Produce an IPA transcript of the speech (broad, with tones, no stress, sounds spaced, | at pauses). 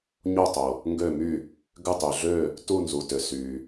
ɲ o˥˩ tˤ o˩ | ŋ ɡ ø˥˩ m y˥˩ | ɡ ʏ˥˩ tˤ y˩ ɮ ø˥˩ | t u˥˩ n z u˩ t ʏ˩ s y˩